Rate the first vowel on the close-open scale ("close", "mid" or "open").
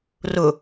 close